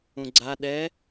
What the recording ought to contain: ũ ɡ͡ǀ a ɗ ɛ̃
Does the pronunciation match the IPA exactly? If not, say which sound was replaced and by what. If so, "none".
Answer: ɛ̃ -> ɛ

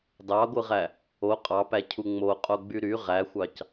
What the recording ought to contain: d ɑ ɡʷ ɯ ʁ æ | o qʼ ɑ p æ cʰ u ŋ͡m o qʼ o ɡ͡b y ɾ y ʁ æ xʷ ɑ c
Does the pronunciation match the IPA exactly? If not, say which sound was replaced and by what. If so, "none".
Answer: none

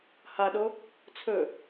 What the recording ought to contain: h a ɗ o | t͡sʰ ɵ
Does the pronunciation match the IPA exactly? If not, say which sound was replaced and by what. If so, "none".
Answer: none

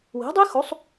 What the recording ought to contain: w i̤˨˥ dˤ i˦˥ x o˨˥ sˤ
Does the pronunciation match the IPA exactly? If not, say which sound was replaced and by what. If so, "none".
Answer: none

